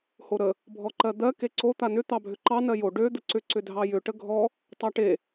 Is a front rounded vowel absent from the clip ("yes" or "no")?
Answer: no